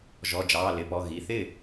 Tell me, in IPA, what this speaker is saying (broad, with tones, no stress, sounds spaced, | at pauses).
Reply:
ʒ ɔ˩˧˩ d͡ʒ ɑː˩˧˩ l ɪː˩˧˩ p ɔ˩˧˩ ɣ i˩˧˩ θ ɪː˥˩